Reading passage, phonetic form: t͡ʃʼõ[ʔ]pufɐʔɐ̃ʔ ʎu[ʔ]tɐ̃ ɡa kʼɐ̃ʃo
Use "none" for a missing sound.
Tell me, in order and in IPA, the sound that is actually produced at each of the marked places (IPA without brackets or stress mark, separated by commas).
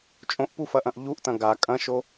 ʔ, ʔ